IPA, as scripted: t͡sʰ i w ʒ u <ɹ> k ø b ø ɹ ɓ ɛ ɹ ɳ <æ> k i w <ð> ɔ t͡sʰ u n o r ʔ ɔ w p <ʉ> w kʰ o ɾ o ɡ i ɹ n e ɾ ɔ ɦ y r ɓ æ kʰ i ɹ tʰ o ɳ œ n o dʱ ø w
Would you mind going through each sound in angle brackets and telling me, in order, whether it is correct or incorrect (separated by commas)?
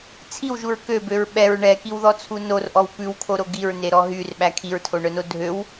correct, incorrect, correct, correct